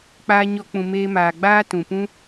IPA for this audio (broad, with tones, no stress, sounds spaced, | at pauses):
k͡p aː˦ ɲ ɔ˦ k͡p ũ˧ m eː˦ m aː˨ ɡ͡b aː˦ t ũ˨ p ũ˦